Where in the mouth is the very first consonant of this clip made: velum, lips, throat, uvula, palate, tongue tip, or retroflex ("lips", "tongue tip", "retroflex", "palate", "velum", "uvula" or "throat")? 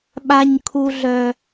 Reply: lips